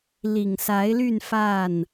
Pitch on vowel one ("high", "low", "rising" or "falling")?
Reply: low